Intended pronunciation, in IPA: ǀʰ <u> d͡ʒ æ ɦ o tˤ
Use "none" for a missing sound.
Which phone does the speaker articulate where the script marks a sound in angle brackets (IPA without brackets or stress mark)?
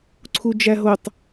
u